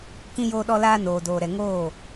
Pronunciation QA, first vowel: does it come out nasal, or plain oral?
nasal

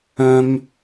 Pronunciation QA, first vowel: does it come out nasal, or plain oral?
nasal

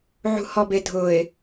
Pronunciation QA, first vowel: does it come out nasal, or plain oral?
oral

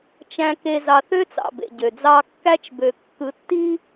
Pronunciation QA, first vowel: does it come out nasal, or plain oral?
nasal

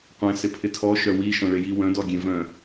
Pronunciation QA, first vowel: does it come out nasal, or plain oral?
nasal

